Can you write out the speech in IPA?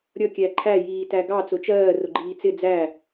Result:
ɾʲ ʌ kʲ æ ǃʰ æ j iː t æ ɡ ɑ t͡s ʊ t͡ʃ ɜː r ʊ ɡ͡ǃ iː t͡s ɪ d͡z æ

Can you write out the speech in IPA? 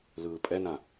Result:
l ɯː pʼ ɛ n ã

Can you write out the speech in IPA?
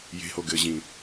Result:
j e̤ h o ɡ ɘ ʑ ĩ

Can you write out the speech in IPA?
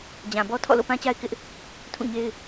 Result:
d͡ʑ ã˨ b ɔ˦ tʰ ɔ̰˦˨ l o̰˦˨ p ã˦ t͡ɕ a˦ ɪ̯ k ɪ˦ ʔ | tʰ ũ˦˨ ɲ e˦ ɪ̯

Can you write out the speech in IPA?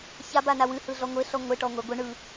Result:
ç a b a n a w ɨ h ɯ ɮ ɔ ŋʷ e ɬ ɔ ŋʷ e ʈ ɔ ŋʷ ɛ ɡʷ ɯ ɳ ɯ

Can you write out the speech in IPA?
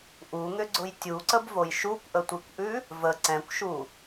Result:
ʔ u ŋ ʏ ɡ͡ǀ ʊ j tʲ u ǀ ə b v o j ʃ u kʷ ʔ ə tʷ i kʷ ʔ ʉ | v ə ǀ ɛ̃ kʷ ʃ u

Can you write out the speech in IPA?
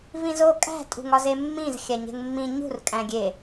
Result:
v ĩ z o kʼ æ̤ tʼ ṳ ŋ ɒ z e mː ĩ z xʲ æ ɲ e̤ ŋ mː ĩ ɲ ṳ r kʼ æ̃ ɡʲ e

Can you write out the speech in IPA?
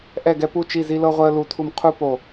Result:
ʔ ɛ˦˨ ɡ ɛ˦ p u˦˨ t͡ʃ i˦˨ z i˦ l ɤ˦ ʁʷ ɛ˦ ə̯ l u˦˨ tʰ u˦ m qʰ u˦ p o˦˨

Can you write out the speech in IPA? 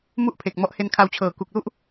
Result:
m u˥˩ ʔ pʰ e˨˩ k̚ m ɔ˦˥ ʔ h e˧ n kʰ a˧ w t͡ɕʰ ɤː˨˩ k u˨˩ k̚ l u˥˩ ʔ

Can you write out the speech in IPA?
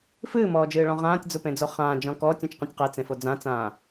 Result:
f ɨː m ɔː d͡ʒ ɨː ɭ ɔ̃ ʁ ãː tʲ d͡z u p ẽ d͡z o χ ãː d͡ʒ ɔ̃ k ɔː tʲ ũ t͡ʃ q ũ tʲ q e t͡s ẽ f o d͡z ã t͡s ãː

